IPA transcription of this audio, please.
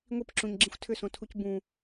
ŋʷ i p ǁ ũ ɲ ɡ͡ǁ ĩ xʷ tʰ ʏ s õ tʰ u c b ũ

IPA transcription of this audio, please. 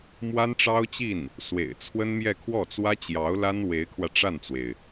m w a˥ n ʈ͡ʂ ɑ˥ ʊ̯ t͡ɕ i˥˩ n | s w ḛ˨˩ ɪ̯ t͡sʰ w ə˥ n m j ɛ˥˧ kʰ w ɔ˥˩ t͡s w ä˥ t͡ɕ j ɑ˧˥ ʊ̯ l a˥ n w e˧˥ ɪ̯ kʰ w ä˧ ʈ͡ʂ a˥˩ n t͡s w e˩ ɪ̯

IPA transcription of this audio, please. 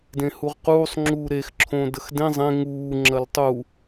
d ẽ h u ʁ q uː sˤ ŋ͡ǁ uː ɾ e x ǁʰ õː d ə x d ẽ zˤ ẽ ŋ uː ŋ͡ǁ ɐ l tˤ u

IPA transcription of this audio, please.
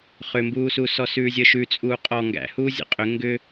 χ ʏ m b uː s u s ɔ s ʉː zʲ əː ʃ ʉ t͡sʼ uː qʼ ɔ ŋ ɡ æ̰ h uː zʲ ə̰ qʼ ʏ ŋ ɡ ʏ

